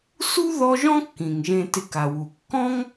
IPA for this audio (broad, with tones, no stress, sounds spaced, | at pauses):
s u˥ ð ɔ˦ ʒ ɔ̃˥ kː ĩ˩ ŋ ʒ ẽ˨ t ɪ˨ k a˩ w u˩ kː ɔ̃˥ ŋ